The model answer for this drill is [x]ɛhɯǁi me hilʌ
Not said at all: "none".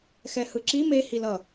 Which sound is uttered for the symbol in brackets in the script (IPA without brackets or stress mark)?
x